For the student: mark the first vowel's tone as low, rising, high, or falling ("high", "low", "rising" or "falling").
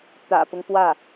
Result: low